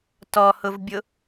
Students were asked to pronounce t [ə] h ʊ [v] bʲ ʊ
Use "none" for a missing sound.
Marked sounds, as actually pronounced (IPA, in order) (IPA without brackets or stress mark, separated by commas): ɔ, v